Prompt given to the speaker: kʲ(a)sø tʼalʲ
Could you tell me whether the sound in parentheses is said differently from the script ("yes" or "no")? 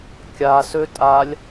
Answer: no